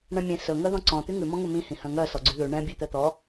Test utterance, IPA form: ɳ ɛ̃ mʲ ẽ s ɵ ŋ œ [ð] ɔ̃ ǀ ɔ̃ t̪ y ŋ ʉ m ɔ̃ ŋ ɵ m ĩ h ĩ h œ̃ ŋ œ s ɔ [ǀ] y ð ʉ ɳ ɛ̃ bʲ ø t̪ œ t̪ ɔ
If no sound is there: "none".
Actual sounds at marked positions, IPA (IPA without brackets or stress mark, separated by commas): ð, ɡ͡ǀ